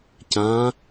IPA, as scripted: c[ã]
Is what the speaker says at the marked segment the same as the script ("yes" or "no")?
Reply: yes